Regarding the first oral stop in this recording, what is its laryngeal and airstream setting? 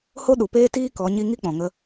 implosive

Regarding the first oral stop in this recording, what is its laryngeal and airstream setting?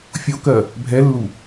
plain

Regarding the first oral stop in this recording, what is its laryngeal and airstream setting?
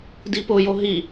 plain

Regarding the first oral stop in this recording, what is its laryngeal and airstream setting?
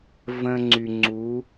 click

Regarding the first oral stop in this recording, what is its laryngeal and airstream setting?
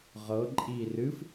click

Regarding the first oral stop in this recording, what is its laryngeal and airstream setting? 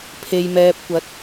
aspirated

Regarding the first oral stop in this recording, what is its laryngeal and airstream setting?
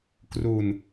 plain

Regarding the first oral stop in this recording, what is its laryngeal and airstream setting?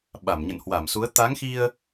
implosive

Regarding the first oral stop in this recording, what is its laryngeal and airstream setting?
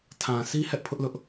aspirated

